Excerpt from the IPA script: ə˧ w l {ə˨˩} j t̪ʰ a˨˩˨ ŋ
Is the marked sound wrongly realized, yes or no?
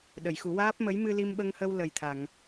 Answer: no